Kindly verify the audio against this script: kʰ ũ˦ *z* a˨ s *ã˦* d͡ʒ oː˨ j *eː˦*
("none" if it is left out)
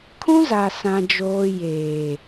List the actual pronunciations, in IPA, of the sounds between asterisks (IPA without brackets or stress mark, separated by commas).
z, ã˨, eː˨